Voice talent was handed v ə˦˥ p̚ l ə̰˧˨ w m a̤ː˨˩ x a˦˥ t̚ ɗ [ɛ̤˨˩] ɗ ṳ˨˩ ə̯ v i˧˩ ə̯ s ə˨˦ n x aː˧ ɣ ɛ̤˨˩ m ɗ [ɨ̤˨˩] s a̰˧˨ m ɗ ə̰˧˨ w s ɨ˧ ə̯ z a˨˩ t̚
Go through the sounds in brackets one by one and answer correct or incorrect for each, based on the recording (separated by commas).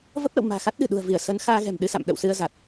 incorrect, incorrect